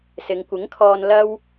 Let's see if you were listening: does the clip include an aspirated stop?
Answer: yes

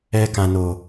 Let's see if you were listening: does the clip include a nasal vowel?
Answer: yes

